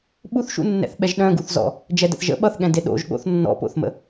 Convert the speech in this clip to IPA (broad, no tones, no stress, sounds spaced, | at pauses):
ɓ u θ ʃ ṵ nː ɛ̰ θ ɓ ɛ ʒ ɗ œ̃ ɡ u θ z ɔ̰ | d͡ʒ ɛ d ə̰ θ ʒ ə̰ ɓ ʌ θ ɠ ɛ̃ d e ɗ o̰ ʒ ɠ o̰ θ nː ɔ̰ p o̰ θ m ə̰